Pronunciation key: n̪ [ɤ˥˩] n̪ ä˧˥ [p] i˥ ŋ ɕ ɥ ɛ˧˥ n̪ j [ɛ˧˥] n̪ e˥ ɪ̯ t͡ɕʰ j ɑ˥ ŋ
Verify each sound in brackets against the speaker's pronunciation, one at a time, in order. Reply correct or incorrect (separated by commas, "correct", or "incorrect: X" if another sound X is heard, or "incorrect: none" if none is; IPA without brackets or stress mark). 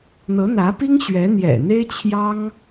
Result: incorrect: ɤ˧˥, correct, incorrect: ɛ̰˨˩